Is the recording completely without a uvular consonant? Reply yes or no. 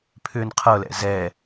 no